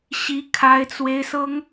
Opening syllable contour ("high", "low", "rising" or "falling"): high